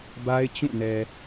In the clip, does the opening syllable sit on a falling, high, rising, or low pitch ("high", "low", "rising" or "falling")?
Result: high